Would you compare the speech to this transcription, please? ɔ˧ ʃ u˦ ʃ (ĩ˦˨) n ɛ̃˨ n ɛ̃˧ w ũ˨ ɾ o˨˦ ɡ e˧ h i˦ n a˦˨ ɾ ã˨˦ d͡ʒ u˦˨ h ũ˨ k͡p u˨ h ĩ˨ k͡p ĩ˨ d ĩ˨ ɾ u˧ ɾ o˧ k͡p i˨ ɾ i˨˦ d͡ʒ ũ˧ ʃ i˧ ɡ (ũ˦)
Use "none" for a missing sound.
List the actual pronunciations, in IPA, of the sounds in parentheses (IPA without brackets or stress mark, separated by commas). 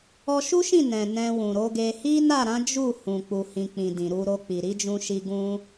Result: ĩ˦˨, ũ˦